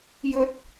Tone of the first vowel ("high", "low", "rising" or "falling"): high